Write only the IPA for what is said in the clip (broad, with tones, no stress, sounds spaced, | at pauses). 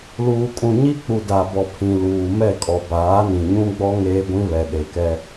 l uː˨ kʼ ũ˨ ɲ i˦ k͡p u˨ d a˨ b ɔ˨ pʰ ĩ˨ l uː˨ m ɛ˦˨ kʼ ɔ˨ b aː˨˦ n ĩ˨ ɲ ũ˦ ɡ͡b ɔ˦ ŋ eː˦ ɡʷ ĩ˦ β ɛ˨ ɗ e˨ k ɛ˦